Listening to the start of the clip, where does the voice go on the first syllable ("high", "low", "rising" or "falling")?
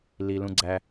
low